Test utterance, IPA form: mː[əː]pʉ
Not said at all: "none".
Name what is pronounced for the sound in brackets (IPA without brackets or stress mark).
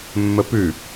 ə